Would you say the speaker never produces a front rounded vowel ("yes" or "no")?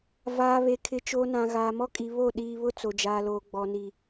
yes